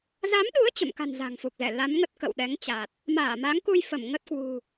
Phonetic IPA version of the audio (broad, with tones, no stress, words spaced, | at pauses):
za˨˦mɗu˨˦ə̯ t͡ɕə̰˧˨mka̤˨˩n za̤˨˩ŋfu˨˩k̚zɛ˧˩ la˨˦mŋə˦˥t̚kə̰˧˨w ɗɛ˨˦ŋt͡ɕa˨˩t̚ | maː˧˩ma˨˦ŋku˧j fə˧˩mŋə˦˥t̚kwṳ˨˩